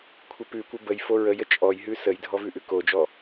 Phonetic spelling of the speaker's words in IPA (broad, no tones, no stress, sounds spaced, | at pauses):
kʷʰ ɪ p ʉ kʷ ɪ b ə j f o ɹ ə j ə t͡ʃʼ ɔ j ɦ ʉ s ə j dʱ ɔ v ʉ ʔ ʉ k o d͡ʒ ɔ